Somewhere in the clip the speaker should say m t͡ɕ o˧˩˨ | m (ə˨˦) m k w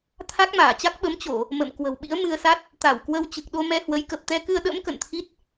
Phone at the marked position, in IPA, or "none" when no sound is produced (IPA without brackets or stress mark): ə̰˧˨